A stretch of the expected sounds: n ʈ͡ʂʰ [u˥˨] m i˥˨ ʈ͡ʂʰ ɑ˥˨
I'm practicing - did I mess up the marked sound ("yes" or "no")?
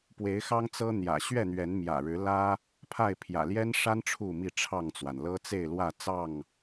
no